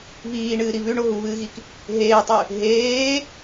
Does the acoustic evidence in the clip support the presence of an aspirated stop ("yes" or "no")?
no